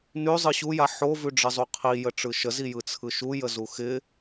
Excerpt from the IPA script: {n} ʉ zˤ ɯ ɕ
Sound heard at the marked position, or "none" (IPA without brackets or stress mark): n